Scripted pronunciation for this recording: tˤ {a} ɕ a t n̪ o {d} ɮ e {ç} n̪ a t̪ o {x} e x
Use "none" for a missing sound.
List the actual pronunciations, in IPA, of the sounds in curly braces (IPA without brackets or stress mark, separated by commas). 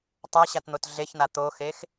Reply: a, t, ç, x